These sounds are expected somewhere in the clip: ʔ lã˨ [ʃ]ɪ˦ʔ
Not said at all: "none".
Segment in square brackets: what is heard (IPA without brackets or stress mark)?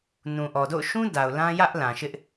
ʃ